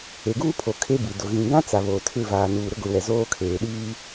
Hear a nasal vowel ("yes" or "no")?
yes